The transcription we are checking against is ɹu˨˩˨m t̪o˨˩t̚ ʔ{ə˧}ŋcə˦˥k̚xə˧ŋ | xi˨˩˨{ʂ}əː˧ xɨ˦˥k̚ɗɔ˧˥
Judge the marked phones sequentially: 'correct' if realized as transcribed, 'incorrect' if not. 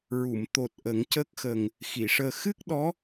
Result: incorrect: ə˨˩˦, correct

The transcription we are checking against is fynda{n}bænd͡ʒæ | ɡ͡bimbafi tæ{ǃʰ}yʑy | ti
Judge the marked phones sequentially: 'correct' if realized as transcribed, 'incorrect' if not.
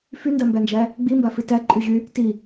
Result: incorrect: m, incorrect: ǃʼ

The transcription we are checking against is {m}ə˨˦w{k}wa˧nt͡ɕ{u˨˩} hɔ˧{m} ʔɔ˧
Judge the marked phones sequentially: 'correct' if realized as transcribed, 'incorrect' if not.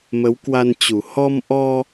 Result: correct, correct, correct, correct

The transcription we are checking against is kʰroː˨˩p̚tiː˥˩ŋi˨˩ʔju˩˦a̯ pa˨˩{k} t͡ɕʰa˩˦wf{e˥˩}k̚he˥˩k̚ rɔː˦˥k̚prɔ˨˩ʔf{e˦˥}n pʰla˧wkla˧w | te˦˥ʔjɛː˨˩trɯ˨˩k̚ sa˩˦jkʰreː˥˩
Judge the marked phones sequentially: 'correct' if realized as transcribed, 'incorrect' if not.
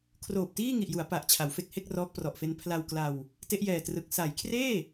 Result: incorrect: ʔ, incorrect: e˦˥, correct

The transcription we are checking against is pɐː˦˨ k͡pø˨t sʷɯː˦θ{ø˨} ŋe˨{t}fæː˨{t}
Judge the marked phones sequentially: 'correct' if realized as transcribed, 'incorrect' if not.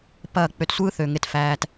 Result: correct, correct, correct

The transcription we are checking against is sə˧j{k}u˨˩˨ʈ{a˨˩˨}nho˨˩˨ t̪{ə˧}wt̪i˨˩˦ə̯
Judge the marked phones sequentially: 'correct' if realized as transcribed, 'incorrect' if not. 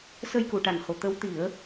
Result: correct, correct, incorrect: ə˧˥

